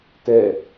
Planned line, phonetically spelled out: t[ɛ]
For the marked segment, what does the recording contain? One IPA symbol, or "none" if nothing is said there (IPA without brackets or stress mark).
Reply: ɛ